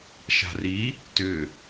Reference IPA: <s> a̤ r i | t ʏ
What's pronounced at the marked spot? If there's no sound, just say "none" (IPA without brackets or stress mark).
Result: ʃ